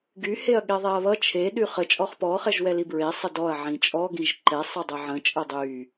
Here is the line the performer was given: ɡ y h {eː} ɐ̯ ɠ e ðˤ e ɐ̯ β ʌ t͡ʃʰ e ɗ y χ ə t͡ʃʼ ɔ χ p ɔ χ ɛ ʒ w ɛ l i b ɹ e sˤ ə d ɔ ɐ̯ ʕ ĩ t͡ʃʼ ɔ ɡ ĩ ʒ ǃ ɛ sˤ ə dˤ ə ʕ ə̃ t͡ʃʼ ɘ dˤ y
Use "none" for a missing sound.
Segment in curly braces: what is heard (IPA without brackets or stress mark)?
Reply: e